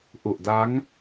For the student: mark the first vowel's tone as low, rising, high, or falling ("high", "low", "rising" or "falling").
low